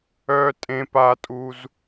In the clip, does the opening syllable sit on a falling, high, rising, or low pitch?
high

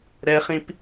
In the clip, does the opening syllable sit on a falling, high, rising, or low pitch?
high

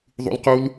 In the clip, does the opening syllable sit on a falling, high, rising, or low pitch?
high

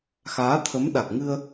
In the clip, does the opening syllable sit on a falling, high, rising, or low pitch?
rising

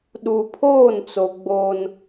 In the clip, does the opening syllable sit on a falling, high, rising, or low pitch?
low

